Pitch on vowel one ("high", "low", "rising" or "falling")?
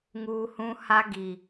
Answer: high